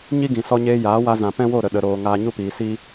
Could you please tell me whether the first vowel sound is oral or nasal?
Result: oral